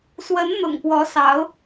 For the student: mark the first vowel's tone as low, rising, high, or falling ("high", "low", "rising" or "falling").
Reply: rising